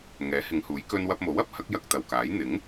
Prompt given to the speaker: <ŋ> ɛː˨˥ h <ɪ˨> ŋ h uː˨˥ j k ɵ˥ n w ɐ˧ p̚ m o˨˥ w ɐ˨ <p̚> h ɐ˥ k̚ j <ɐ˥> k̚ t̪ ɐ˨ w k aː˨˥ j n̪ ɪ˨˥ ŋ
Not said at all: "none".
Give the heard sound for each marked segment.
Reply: ŋ, ɪ˨˧, p̚, ɐ˧

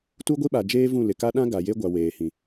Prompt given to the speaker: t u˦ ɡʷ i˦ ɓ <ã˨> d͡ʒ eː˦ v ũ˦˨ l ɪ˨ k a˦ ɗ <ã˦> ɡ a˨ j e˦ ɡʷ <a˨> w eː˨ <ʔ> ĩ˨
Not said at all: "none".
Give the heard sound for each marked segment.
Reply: a˨, ã˦, a˨, h

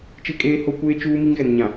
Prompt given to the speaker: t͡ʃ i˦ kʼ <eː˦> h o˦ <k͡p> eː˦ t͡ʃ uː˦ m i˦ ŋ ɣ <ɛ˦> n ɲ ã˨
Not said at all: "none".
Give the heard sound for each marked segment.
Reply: eː˦, kʷ, ɛ˨

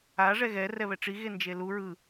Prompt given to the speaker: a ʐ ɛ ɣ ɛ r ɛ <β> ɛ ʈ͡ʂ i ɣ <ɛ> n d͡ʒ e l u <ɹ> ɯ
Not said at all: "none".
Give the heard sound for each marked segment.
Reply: β, e, ɹ

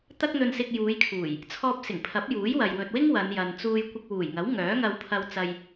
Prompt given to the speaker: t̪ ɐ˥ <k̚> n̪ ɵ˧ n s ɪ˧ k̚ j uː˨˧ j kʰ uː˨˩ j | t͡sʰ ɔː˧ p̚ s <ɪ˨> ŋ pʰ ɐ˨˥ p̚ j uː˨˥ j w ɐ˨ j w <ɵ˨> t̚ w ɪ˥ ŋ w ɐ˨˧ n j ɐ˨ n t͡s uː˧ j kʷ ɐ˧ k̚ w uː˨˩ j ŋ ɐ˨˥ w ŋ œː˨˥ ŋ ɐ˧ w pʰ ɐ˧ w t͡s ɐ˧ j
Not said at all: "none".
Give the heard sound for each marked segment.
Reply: k̚, ɪ˨˩, ɵ˨

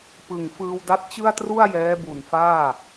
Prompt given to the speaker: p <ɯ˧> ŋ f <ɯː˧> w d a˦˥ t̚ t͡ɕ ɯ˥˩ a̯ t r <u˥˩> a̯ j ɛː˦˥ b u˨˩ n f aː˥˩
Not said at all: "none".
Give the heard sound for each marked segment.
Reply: ɯ˨˩, ɯː˧, u˥˩

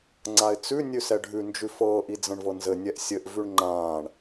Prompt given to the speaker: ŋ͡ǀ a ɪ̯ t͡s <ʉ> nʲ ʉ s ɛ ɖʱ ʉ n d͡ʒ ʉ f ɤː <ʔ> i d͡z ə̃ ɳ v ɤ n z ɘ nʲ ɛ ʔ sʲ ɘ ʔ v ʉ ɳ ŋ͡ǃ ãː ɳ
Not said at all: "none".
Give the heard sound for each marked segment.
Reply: ʉ, ʔ

